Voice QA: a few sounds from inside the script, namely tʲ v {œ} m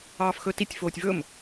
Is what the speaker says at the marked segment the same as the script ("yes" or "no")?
no